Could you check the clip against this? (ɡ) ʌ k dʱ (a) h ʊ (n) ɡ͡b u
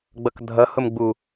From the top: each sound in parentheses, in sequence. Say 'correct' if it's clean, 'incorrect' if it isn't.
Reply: incorrect, incorrect, incorrect

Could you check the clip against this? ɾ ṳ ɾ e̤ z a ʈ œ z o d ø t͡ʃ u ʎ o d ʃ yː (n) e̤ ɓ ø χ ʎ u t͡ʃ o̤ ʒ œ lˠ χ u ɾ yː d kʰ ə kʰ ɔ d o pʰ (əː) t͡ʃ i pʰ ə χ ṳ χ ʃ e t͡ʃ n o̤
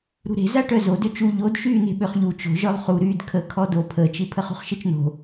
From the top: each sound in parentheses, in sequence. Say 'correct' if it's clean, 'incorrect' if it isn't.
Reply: correct, correct

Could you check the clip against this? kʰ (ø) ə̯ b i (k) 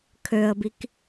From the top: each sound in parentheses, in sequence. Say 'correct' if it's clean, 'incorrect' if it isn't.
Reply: correct, correct

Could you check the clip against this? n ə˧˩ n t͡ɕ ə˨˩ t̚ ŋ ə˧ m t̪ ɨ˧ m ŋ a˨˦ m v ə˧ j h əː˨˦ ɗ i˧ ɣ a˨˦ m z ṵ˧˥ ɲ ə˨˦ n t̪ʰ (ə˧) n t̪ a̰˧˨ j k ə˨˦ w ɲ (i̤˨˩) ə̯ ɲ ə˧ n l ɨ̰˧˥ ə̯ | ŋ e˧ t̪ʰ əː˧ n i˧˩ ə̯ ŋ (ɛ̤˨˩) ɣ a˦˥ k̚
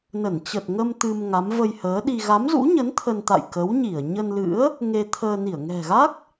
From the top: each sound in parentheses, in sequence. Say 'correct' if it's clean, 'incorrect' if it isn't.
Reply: correct, incorrect, correct

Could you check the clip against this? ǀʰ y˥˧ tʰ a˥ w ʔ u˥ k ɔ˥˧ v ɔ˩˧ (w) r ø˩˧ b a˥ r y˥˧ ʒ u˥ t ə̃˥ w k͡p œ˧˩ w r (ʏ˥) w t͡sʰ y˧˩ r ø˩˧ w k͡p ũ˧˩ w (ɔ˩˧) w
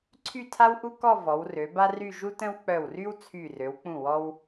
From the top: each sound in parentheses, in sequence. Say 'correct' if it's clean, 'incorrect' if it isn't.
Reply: correct, incorrect, incorrect

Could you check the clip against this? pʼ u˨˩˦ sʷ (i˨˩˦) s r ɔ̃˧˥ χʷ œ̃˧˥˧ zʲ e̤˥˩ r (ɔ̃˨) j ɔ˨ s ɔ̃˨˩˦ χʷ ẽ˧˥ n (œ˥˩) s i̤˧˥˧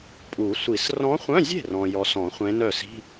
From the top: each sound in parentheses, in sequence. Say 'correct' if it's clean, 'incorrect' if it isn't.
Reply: correct, correct, correct

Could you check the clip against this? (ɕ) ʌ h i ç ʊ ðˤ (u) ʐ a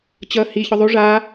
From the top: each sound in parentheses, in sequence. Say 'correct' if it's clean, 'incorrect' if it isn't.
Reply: incorrect, correct

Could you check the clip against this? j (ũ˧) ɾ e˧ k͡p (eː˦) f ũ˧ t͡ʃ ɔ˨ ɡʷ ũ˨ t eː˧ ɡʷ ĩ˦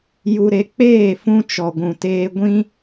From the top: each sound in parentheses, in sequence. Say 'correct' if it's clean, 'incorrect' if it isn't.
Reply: incorrect, incorrect

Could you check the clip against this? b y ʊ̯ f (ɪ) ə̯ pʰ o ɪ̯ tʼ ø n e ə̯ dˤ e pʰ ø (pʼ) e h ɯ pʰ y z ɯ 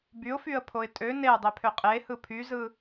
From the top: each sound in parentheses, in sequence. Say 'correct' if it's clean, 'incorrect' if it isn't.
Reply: incorrect, incorrect

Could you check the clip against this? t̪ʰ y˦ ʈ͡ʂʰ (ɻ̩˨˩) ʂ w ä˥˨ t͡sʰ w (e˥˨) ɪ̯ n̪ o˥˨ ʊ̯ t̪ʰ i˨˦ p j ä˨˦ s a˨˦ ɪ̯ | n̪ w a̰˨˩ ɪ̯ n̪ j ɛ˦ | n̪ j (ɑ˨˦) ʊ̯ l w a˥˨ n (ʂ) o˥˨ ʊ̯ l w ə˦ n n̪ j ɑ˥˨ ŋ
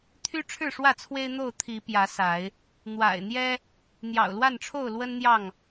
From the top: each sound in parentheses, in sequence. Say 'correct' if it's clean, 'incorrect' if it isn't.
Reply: incorrect, incorrect, incorrect, incorrect

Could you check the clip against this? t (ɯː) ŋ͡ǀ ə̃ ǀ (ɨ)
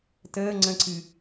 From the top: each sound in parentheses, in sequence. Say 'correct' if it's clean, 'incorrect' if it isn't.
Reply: incorrect, correct

